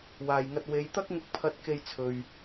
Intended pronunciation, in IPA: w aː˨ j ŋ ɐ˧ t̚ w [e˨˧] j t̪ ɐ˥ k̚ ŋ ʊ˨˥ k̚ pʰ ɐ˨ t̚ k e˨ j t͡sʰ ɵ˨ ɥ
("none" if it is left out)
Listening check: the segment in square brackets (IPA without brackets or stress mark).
e˨˧